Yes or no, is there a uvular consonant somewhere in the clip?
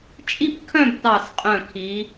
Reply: yes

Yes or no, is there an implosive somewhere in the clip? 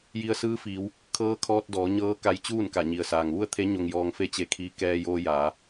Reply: no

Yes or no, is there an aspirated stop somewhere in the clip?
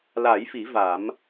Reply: no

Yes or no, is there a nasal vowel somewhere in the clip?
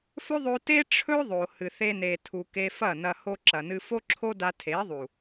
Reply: no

